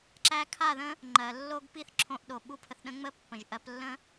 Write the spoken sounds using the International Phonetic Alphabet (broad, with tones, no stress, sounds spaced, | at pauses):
ǁ æ˧ kʰ a˦˨ ð ə̃˦ | ŋ͡ǃ ɜ˨ lː o˧ ɡ p i˦ θ ǁʰ õ˧ ʔ ɗ o˨ ɓ u˦ pʰ ə˧ θ ɗ ə̃˦ ŋ͡m ə˦ pː ə̃˨ ʒ ʔ ɜ˧ p lː ə̃˦